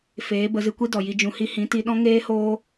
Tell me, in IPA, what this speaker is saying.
f eː˨˦ b ə˨˦ z ɨ˧ kʷ i˦ d ɔ˨ j i˧ d͡ʒ ũ˧ h i˦ h ĩ˨˦ t i˧ ɗ ɔ̃˦ ŋ eː˦ h oː˦

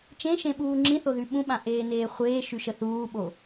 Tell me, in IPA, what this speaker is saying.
t͡ʃ ẽ ʃ ẽ ɓ uː ŋ͡ǁ ĩ θ o ð y ɓ ũ ɓ ã ʔ eː n eː χʷ eː ʃ y ʃ ə θ uː ɓ o

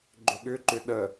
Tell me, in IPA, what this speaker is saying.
ɡ͡ǃ ʏ ɠ ʏ ǃ ʏ ɗ ə

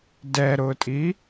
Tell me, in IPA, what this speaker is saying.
d ɛ ɾ ʊ tʼ i

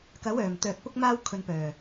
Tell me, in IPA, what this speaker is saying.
k ɐ˨˥ w œː˨˩ m t̪ œː˨ k̚ p ʊ˧ k̚ m aː˧ w kʰ ɵ˨ n p œː˨˩

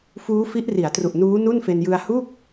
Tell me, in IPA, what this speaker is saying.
f uː˦˥ f i˦˥ ʔ r i˩˦ a̯ t r u˨˩ ʔ n uː˦˥ n u˥˩ n f e˧ n j ɯ˧ a̯ h u˥˩ k̚

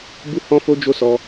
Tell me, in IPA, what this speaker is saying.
b u˦ h ɔ̃˦ f o˦ d͡ʒ o˦ s ɔ˧

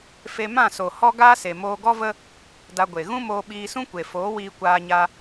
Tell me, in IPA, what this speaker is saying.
f e˧ m ã˦˨ s o˨ h ɔ˦ ɡ aː˦ s e˨ m oː˧ ɡ ɔ˦ v ə˦ | d a˧ ɡʷ e˨ ɣ ũ˦ m oː˧ ɓ iː˧ s ũ˦ kʷ e˨ f oː˨˦ w iː˧ kʷ aː˧ ɲ a˧

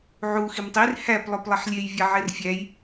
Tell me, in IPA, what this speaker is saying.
ʕ u x i m tˤ i r h æ p lˠ o p lˠ i ħ lʲ e j vʲ a ʕ e r fʲ æ j

